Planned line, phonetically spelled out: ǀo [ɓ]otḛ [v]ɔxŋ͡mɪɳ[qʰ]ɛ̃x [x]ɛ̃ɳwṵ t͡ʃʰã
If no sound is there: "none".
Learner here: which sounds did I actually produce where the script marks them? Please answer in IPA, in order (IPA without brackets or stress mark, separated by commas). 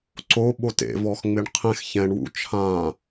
ɓ, v, qʰ, ç